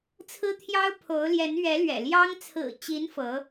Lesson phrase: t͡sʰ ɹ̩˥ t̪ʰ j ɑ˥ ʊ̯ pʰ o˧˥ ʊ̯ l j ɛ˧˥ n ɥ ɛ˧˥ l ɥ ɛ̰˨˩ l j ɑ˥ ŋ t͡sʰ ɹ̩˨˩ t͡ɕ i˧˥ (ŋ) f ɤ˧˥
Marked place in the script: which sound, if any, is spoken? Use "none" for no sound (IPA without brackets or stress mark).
n